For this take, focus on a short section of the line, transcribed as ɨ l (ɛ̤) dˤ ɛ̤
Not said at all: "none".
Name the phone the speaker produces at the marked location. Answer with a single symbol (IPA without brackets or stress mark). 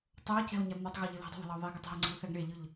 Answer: ɛ̤